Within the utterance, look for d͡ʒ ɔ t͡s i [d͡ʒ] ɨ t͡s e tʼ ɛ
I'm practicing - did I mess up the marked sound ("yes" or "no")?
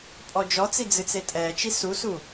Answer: yes